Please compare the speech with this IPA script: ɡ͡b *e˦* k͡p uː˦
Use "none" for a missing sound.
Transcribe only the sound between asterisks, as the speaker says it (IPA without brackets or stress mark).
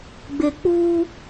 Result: e˨